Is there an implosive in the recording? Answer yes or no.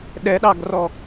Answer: yes